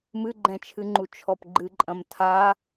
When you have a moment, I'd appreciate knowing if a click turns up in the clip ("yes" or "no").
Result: yes